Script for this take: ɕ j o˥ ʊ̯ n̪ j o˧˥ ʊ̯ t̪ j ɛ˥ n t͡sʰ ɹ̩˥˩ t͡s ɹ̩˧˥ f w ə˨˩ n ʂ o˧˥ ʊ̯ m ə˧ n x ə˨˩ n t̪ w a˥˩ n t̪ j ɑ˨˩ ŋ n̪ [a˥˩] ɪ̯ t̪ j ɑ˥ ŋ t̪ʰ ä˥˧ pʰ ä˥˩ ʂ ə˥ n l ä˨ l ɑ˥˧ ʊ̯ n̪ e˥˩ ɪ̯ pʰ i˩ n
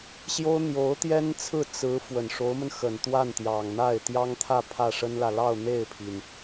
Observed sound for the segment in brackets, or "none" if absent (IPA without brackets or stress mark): a˥˩